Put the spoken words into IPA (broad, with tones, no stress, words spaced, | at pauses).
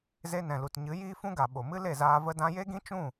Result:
ze˧nɛ̃˨lu˨tɲɨ˨˦ jiː˦fũ˦ɡa˨ ɓo˨mɨ˦le˦˨zaː˧ və˧dã˧je˦ɡĩ˦ t͡ʃũ˦˨